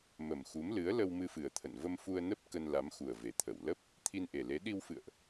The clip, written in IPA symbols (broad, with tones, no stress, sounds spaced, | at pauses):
m ə˨˩ m x u˨˦ m l ɨ˨˦ ə̯ l ə˧ w m ɨ˧ f ɨ˨˩ ə̯ t̪ʰ ə̰˧˨ n v ə˧ m f u˧ ə̯ n ə˦˥ p̚ k ə˧ n l a˨˦ m x u˨˩ ə̯ v e˨˩ t̪ʰ ə˧˩ w l ə˦˥ p̚ | t̪ʰ i˧ n ʔ e˨˩ l e˨˦ ɗ i˧ w f ɨ̰˧˨ ə̯ ʔ